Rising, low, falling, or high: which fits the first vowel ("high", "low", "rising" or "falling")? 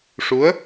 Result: rising